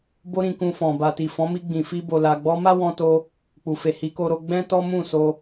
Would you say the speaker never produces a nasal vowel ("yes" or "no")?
no